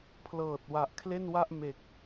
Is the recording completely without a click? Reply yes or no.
yes